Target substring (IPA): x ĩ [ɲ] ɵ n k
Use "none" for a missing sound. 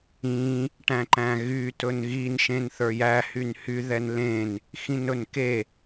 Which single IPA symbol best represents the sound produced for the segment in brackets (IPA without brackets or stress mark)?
n